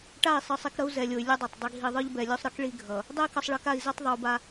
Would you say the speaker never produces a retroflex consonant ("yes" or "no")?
no